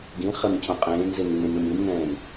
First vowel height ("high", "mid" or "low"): high